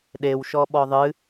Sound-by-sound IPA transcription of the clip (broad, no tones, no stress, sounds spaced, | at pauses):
ɗ e w ʃ ɔ ɓ ɔ ðˤ ɨ